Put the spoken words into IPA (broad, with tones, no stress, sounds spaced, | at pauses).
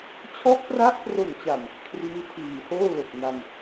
t͡ɕʰ ɔ˦˥ ʔ p r a˦˥ ʔ p r o˨˩ n t͡ɕ a˨˩ m | kʰ r iː˦˥ tʰ iː˨˩ h oː˥˩ l o˨˩ k̚ n a˧ m